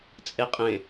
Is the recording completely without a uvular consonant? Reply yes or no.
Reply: no